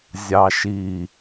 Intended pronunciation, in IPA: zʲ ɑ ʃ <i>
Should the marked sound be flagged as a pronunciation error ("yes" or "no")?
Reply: no